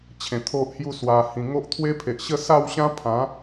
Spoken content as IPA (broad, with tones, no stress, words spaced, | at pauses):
t͡ɕʰẽ˨˩t̪ʰo˦ʔhju˥˧ swa˨˩ hĩ˨˩ŋo˦ʔt̪ʰwe˦pʰe˨ʔ ɕə˥˧sa˥˧wɕã˦pʰã˨˦